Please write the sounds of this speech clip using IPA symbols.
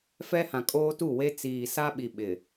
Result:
f ɛ˦ h ã˨ kʼ oː˦ t u˦˨ w e˦ t͡s iː˨ s a˦ ɓ i˨ ɓ ɪ˨

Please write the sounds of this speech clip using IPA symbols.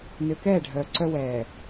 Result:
n ø˨ k ɛː˦˨ ɖʱ œː˨ ǀ œ˦ w ɛː˨

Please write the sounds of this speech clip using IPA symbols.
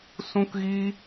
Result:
s ũ˦ k ɣ i˦

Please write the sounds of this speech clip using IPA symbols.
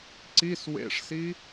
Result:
ǀ i s w ḛ ʂ s i

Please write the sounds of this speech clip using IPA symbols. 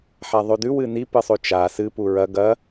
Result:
ħ a ðˤ ʉ d ʉ w ɨ n i p ɨ sˤ ʉ t͡ʃ a s ɨ p u ɹ ɐ ɡ ɐ

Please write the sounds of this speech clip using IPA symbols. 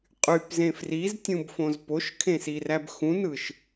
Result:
qʼ y p z ẽ f r i z tʲ ũ b f õ z p o ʃ kʰ ẽ s i r æ b x ũ n ɯ ʃ

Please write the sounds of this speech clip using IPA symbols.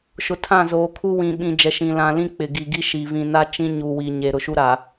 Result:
ʃ ʊ˨ tʰ ã˦˨ z oː˨ kʰ u˦ w ĩ˨ ɓ ĩ˨ d͡ʒ ɛ˨ ʃ ĩ˨ l ã˨ l ĩ˦ k͡p ɪ˨ ɡ i˨ ɡ i˦ ʃ i˨ v ĩ˨ n a˦ t͡ʃ ĩ˦ ɲ u˨ w i˨ ɲ e˨ ɾ ʊ˨ ʃ u˦ ɾ a˨

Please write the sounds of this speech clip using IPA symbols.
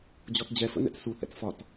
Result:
d͡ʑ ɔ t d͡ʑ ɛ f ə̰ n ɛ̰ t s u θ ɛ̰ t f ɒ t

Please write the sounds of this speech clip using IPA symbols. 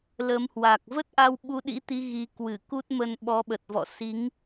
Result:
l ə˨˦ m h w a˨˩ k̚ v ə˦˥ t̚ ʔ a˧ w ɓ u˨˦ ɗ ḭ˧˥ t̪ i˨˦ ɣ i˨˦ k w ɨ˧˩ k u˦˥ t̚ m ə˧ n ɓ ɔ˨˦ ɓ ə˨˩ t̚ v ɔ̰˧˨ s i˨˦ ŋ

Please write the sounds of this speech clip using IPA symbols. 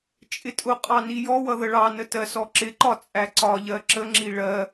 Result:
t͡ʃʼ ɪ tʼ ʊ qʼ ɑ n i j ɔ w ʌ ð ə ɭ ɑ n ə t ɜ s ɔ ǁ ɪ ǃ ɒ t͡sʼ æ ǀ ɒ ʎ ɜ ǁ ə ŋ͡ǁ i ɭ ɜ

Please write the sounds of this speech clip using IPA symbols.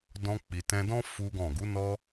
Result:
d ɔ̃˧ k͡p i˨ t ɛ̃˧ d ɔ̃˦ f u˦ ɡ ɔ̃˦˨ ɡ u˨˦ n ɔ˦

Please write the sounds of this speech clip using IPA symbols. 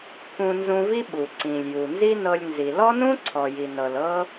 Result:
k ũ˧ n z ũ˧ v i˦ ɓ u˨ ǀ ĩ˨ lʲ j u˨ n z i˦ n ɤ˧ lʲ n z i˨ l ɔ˦ n ũ˦ ǀʰ ɔ˨ j i˨ n ɤ˨ l ɤ˦

